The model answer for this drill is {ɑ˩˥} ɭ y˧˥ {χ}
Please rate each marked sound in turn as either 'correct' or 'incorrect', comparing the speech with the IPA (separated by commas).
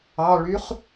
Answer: incorrect, correct